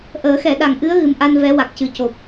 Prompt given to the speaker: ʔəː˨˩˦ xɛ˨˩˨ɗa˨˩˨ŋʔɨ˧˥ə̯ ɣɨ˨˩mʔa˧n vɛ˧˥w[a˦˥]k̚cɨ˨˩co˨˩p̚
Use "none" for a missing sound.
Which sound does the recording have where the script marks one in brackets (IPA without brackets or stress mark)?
a˨˩